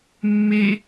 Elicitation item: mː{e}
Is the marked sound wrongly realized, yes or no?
no